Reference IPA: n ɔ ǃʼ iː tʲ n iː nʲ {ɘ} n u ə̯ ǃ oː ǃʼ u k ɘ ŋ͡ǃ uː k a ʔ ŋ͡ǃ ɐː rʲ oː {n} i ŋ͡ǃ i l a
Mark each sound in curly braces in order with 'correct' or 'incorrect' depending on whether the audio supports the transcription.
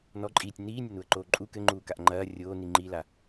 correct, correct

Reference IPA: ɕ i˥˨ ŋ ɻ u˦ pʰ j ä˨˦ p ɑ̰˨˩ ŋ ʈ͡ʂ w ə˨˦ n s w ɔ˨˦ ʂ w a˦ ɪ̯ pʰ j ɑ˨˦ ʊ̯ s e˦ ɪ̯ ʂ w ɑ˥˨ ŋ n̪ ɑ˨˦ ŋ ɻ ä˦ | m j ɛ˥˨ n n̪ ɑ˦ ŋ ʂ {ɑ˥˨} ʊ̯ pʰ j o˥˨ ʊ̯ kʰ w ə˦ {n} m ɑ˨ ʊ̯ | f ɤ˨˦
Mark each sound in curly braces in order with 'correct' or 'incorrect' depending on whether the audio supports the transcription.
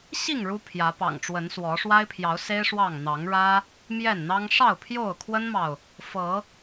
correct, correct

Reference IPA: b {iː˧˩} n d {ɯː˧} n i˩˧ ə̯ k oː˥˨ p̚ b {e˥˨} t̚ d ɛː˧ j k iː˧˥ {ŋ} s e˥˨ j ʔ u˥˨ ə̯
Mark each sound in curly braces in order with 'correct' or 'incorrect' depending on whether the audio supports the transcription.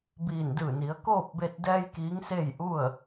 correct, incorrect: ɯː˧˩, incorrect: e˧, correct

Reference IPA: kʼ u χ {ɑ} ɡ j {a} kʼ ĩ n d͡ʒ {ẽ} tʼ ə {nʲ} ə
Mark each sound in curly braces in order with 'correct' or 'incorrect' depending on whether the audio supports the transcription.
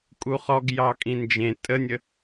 incorrect: ɔ, incorrect: ɑ, correct, correct

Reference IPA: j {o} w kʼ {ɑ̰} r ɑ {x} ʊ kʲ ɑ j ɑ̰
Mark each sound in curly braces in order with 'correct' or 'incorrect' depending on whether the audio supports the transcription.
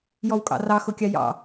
incorrect: ɔ, correct, correct

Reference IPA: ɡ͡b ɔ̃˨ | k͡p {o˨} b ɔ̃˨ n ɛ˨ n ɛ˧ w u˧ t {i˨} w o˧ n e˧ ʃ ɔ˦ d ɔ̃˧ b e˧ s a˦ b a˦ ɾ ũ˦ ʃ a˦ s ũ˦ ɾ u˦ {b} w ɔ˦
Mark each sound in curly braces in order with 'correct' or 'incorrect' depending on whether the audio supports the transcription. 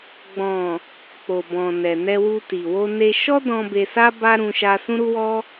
correct, correct, incorrect: none

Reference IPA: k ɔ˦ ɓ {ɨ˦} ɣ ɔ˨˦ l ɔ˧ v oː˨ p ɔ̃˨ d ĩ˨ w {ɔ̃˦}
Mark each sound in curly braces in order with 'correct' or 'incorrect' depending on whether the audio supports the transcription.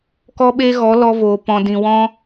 incorrect: e˦, correct

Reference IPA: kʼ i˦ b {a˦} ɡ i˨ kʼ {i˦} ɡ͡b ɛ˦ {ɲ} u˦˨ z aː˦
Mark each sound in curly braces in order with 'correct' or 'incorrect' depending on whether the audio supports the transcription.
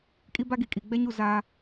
correct, incorrect: i˨, correct

